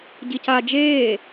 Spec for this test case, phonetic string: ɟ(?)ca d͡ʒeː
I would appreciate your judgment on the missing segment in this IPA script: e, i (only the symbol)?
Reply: i